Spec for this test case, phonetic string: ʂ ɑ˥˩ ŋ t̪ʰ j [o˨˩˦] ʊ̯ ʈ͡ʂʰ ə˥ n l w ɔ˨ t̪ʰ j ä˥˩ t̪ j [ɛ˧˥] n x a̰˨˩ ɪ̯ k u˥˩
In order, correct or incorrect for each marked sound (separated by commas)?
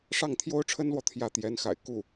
incorrect, correct